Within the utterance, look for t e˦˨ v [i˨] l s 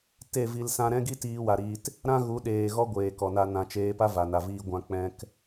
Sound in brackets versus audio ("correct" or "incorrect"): incorrect